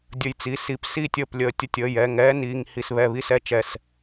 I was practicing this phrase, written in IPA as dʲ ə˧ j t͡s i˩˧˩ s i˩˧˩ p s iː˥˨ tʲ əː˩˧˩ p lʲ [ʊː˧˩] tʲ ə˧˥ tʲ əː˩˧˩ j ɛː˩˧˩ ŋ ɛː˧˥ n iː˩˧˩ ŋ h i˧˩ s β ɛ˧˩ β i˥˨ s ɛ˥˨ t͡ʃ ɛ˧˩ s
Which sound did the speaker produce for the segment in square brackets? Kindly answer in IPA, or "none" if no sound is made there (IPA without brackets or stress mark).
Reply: əː˧˩